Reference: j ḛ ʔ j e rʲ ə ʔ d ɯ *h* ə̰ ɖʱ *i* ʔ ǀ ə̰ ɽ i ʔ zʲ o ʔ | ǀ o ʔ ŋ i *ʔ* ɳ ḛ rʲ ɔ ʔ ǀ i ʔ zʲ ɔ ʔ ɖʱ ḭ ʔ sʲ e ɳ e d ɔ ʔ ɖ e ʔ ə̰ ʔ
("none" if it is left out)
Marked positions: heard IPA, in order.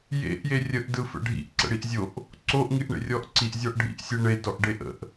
f, ḭ, ʔ

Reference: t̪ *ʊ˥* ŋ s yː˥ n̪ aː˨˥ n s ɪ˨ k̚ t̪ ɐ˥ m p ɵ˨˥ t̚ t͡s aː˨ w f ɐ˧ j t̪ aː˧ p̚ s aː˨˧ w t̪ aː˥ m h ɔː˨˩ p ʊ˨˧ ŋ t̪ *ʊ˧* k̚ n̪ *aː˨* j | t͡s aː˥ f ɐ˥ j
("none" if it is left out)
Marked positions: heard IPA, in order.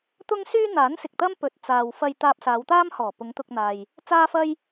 ʊ˥, ʊ˧, aː˨

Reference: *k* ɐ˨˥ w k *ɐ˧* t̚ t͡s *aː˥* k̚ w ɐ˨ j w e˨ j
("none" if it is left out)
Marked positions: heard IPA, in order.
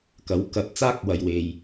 k, ɐ˧, aː˥

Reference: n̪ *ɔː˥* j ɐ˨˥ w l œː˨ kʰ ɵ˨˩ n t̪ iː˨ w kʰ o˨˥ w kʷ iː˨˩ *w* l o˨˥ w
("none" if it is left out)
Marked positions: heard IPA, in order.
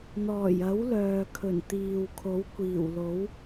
ɔː˨˩, w

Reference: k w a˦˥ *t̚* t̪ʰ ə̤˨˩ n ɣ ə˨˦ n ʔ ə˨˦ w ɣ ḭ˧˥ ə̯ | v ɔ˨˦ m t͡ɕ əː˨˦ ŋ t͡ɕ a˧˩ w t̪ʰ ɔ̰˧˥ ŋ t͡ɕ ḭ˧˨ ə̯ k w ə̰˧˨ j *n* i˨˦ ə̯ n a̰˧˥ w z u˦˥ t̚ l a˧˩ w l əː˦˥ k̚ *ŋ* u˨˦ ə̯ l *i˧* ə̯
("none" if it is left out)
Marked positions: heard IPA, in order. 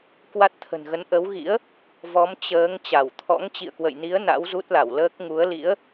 t̚, n, ŋ, ḭ˧˥

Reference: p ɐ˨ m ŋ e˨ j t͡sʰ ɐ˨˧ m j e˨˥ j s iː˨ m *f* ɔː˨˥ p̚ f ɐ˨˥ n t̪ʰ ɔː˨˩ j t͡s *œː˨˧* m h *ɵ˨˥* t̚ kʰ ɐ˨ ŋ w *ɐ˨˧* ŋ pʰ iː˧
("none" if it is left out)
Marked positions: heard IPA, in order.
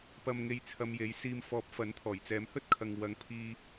f, ɛː˨˧, ɵ˥, ɐ˨˧

